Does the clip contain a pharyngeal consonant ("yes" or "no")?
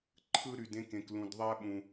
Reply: no